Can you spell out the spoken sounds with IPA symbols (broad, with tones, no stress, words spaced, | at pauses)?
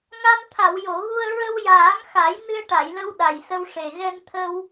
ŋa˧mt̪ʰa˨˩˨wjo˨˩˨ɣu˧ə̯ ɹə˧wjaː˨˩˦ŋxa˨˩˦j nɨ˧ə̯ʈa˨˩˨jlə˧w ɗa˨˩jsə˧w ʂe˨˩ ɣɛ˧nt̪ʰə˧w